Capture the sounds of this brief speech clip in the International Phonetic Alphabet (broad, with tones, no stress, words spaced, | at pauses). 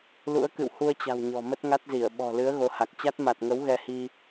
lṵ˧˥ə̯kɨ̰˧˨whu˧ə̯t͡ɕa̤˨˩w ɲɔ̤˨˩mə˦˥t̚ŋa˦˥t̚zi˧˩ə̯ ɓɔ̤˨˩lɨ˨˦ə̯ ɣo˨˦ha˨˩k̚ t͡ɕa˦˥t̚ ma˨˩t̚ŋə˨˦w ɣɛ˧hi˧